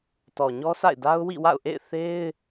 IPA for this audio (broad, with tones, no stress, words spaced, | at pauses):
tɔ˨ɲɔ˦sa̰˦˨ɪ̯da˦ʊ̯ wḭ˦˨wa̰˦˨ʊ̯ʔḛ˦˨ɪ̯ θe˦ɪ̯